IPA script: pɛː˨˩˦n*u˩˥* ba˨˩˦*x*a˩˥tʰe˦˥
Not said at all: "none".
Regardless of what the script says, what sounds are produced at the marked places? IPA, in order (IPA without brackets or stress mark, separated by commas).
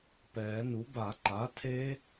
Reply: u˩˥, ǃ